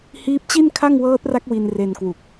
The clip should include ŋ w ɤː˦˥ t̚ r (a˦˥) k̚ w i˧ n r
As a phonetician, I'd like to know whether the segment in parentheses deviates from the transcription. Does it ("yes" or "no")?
no